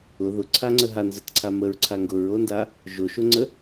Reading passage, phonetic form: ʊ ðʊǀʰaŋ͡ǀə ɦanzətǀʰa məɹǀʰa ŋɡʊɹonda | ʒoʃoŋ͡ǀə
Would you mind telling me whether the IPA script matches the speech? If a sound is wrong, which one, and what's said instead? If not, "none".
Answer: none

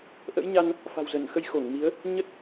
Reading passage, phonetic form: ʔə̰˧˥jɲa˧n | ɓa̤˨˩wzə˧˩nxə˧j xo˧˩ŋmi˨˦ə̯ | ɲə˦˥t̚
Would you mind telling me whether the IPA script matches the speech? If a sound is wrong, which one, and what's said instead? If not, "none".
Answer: ɓ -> f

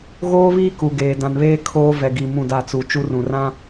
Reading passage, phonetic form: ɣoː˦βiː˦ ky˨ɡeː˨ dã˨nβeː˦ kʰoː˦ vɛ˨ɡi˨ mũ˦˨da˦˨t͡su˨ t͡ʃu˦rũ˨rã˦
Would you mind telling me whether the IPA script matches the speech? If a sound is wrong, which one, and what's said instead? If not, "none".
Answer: y˨ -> u˨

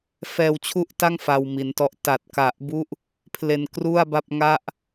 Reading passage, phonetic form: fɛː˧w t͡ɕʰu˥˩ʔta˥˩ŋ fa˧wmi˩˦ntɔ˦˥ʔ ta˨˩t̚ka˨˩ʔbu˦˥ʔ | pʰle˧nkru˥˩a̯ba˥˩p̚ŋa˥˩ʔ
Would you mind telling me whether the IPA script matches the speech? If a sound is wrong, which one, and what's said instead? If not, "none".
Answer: none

